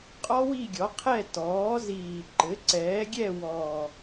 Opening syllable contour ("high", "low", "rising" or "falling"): high